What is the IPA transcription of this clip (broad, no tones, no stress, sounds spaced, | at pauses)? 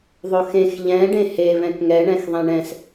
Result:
ðˤ o x ẽ x ʎ ɛ̃ ɖ ẽ h e β ɛ̃ k ŋ ɛ ɳ ɛ̃ x ðˤ ɛ̃ ɳ ɛ̃ s